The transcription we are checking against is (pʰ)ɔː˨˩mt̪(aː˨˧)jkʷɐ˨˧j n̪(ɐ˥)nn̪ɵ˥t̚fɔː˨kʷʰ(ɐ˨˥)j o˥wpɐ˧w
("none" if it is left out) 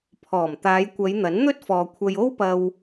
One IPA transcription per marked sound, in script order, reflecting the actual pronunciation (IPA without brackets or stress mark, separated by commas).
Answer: pʰ, aː˨˧, ɐ˨˥, ɐ˧